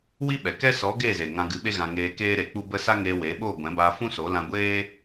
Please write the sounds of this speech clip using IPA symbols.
w i˦ ɓ ɛ˨ k ɛ˦ s ɔ˨˦ ɡ eː˦˨ z e˨ ŋ ã˧ ɡ ɨ˨˦ ɓ e˦ ɣ ã˧ ŋ eː˧ k eː˦ ɾ e˧ k͡p u˦ b ə˦ s a˦ ŋ eː˧ w e˨˦ ɓ oː˦˨ ɡʷ ɛ̃˨˦ b aː˧ f ũ˦ s o˨˦ l ã˧ ɡʷ eː˦

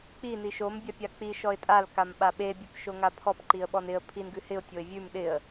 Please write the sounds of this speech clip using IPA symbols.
k͡p i n i ʃ o m bʲ a pʲ a k͡p i ʃ ɔ ɪ̯ tʼ a l k a m ɓ a ɓ e bʲ e p ʃ o ŋ a pʰ ɔ p ǃ i ə̯ ɓ ɔ n ɪ ə̯ pʰ i n ɡ ʉ h ɪ ʊ̯ tʲ o ɪ̯ vʲ ʉ m ɗ ɪ ə̯

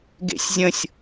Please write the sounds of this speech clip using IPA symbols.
ɡ ḛ sʲ zʲ ə̃ sʲ

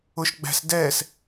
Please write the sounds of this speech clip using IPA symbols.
ʊ ʃ ɡ͡b æ̤ s d ɛː s

